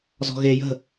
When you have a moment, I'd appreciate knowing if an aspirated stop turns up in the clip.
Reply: no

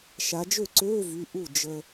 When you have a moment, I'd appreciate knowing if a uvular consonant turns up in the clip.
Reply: no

